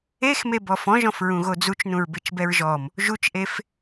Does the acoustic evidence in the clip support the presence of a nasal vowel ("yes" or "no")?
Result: yes